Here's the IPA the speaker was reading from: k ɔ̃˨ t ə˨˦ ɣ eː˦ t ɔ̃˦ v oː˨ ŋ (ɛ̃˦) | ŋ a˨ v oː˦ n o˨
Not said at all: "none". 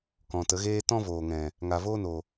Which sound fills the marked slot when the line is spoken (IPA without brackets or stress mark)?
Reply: ɛ̃˨